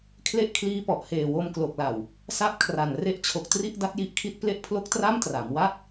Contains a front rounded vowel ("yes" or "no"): no